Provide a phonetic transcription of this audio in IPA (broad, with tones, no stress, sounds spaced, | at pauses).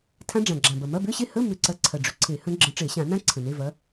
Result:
tʰ ã˦˥ ɖ͡ʐ ã˨˩ ɡ͡ǁ ã˨˩ b ɐ˨˩ m ɐ˧˥˧ b ʏ˧˥˧ ɕ e˥˧ h ə˧˥˧ m ʏ˧˩˧ ǀ ɐ˨˥ ǀʰ ɐ˨˩ ɖ͡ʐ ʏ˨˩ ǀʰ e˧˩˧ h ə̃˦˥ ɡ͡ǁ ə̃˨˥ ʈ͡ʂ e˧˩˧ ɕ ã˧˩˧ n ã˦˥ ǀʰ ə̃˨˩ n e˧˥˧ v ɐ˨˥